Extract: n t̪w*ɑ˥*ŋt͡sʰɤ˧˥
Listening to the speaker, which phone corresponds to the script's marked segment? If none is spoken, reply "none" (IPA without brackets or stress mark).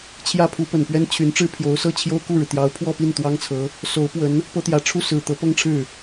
ɑ˥